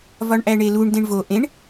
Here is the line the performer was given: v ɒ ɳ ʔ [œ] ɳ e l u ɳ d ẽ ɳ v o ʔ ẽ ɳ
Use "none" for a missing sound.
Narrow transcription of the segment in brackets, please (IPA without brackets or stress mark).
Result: æ